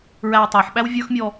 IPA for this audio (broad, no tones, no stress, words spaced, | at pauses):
ɹæwtˤæħɓæw vʲə˞xmʲɔ